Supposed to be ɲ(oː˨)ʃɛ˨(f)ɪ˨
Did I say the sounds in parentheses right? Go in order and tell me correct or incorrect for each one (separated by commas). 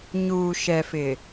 incorrect, correct